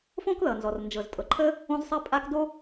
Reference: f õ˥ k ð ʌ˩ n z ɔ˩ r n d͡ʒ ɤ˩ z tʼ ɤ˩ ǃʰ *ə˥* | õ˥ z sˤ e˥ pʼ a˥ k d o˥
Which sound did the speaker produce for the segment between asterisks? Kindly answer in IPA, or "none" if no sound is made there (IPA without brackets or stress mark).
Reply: ə˥